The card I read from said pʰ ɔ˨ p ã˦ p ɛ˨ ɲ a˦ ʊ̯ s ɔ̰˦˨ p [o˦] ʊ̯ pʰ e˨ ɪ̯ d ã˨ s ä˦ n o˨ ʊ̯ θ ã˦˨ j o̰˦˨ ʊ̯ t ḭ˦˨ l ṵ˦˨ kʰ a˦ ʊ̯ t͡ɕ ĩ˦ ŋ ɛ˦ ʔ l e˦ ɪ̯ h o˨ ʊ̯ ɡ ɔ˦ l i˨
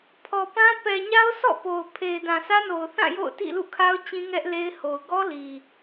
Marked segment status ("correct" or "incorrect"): incorrect